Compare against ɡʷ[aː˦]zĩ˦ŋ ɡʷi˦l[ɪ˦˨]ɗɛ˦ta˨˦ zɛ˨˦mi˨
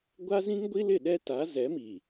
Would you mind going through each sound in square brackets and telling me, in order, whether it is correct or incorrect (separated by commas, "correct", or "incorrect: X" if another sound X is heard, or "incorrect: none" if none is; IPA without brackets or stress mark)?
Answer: incorrect: a˦, correct